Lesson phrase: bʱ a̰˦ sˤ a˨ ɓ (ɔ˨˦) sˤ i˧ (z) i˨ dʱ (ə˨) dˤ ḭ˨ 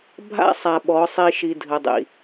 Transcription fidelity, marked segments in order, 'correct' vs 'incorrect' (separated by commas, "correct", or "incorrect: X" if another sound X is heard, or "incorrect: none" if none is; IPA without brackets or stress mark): correct, incorrect: ʃ, correct